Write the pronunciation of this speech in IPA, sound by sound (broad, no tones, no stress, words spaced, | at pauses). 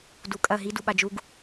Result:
dukʼɐ ɦi duɓad͡ʒuɡ